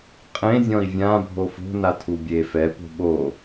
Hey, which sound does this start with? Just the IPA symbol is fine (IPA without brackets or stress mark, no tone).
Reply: qʼ